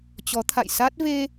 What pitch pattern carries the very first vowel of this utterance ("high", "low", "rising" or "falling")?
rising